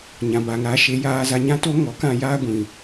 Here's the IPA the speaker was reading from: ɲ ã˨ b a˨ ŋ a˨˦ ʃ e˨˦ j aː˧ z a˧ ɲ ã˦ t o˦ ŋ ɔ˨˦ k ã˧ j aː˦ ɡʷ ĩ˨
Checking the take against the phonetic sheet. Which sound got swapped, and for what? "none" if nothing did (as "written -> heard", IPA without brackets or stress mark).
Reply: none